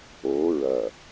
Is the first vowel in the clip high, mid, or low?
mid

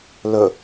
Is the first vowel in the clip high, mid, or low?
mid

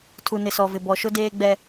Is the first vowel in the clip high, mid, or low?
high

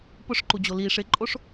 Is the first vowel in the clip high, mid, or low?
high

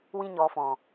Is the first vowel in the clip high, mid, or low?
high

